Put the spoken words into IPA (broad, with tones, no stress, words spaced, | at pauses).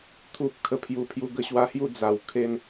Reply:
t̪ʰu˨p̚ kʰə˧pʰju˨˩pʰju˧ ɡə˧ɕwa˦hju˥˧ d͡za˨˩w kʰe˥˧n